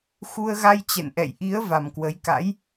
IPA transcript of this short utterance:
x u˧ ə̯ ɣ a˧ j t͡ɕ ɛ̰˧˨ n ʔ ɛ̰˧˨ j ʔ i˨˦ ə̯ v a˨˩ m k w ə˨˦ j k a̰˧˥ j

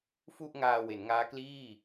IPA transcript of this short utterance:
f u˥˩ ʔ ŋ aː˧ w e˩˦ n ŋ aː˦˥ k l iː˥˩

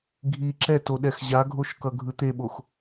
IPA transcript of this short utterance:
ɡʱ i ǁ ɛ t o ɗ ɛ x ʑ a ɡʱ o ʃ k ʌ ɡʱ ɯ t̪ e ɓ o x

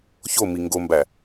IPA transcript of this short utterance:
ç o m i ŋ ɡ o m b æ

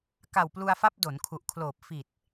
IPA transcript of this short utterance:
k a˨˩ w p l u˧ a̯ f a˦˥ p̚ d o˩˦ n kʰ u˨˩ ʔ kʰ l oː˨˩ p̚ f i˨˩ t̚

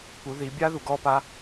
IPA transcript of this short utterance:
p u˩˧ ð i˩˧ bʲ a˥ ð u˩ ɡ ɔ˧ p a˧˥

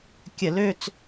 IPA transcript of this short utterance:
kʲ ə˧˩˧ l ø˦˨ t͡s

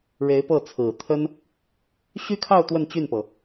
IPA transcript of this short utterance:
ɻ e˧˥ ɪ̯ p ɤ˥˩ t͡sʰ ɹ̩˨˩ t̪ʰ ə˥ n | ɕ y˥ kʰ ɑ˥˧ ʊ̯ t̪ w ə˥˧ n t͡ɕ y˥˩ n p ɤ˩

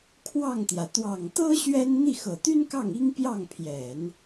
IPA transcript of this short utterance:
kʰ w ɑ˥˩ ŋ t̪ j ä˩ t̪ w ɑ˨˩ ŋ t̪ ɤ˥ ɕ ɥ ɛ˥ n n̪ i˥˩ x ɤ˨˩ t̪ y˥ n k ɑ˥˩ ŋ i˥ ŋ p j ɑ˥˩ ŋ pʰ j ɛ˨˩˦ n

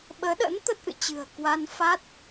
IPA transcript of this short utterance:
ɓ əː˨˦ ɗ ə̰˧˥ n t̪ ə˦˥ t̚ ʔ ɨ̰˧˨ t͡ɕ ɨ̤˨˩ ə̯ k w a˧ n f a˦˥ t̚

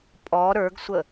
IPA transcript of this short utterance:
pʼ ɔ ɾ ə˞ ɡ sʷ ə

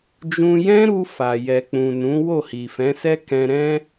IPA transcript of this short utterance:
d͡ʒ ũ˧ j ɛ̃˦ ɾ u˧ f a˨ j ɛ˨ k͡p ũ˨ n ũ˨˦ w o˦˨ h i˨ f ɛ̃˨˦ s ɛ˦ k ɛ̃˧ ɾ ɛ̃˦

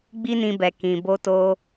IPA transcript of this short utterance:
ɡ͡b i˦ n ĩ˧ b ɛ˨ k ĩ˨ b o˧ t o˧

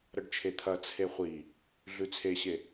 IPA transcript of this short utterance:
ɾ ɐ ɖ t͡ʃʰ e t̪ʰ ɐ t͡sʰ e χʷ i | ɮ ʉ t͡sʰ e ɕ e

